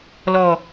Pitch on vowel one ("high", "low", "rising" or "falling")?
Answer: low